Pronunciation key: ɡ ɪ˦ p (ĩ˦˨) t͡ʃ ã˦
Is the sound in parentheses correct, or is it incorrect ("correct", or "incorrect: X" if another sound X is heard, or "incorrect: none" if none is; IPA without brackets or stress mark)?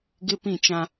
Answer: correct